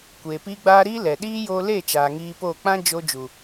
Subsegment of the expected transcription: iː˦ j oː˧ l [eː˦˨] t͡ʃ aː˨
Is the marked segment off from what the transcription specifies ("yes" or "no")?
no